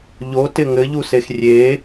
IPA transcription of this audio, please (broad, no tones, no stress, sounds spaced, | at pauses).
ʎ o t ɪ ŋ ɘ ʎ u s e x rʲ e